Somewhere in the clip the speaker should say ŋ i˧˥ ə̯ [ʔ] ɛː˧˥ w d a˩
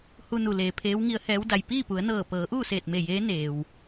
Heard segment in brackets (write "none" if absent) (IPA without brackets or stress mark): h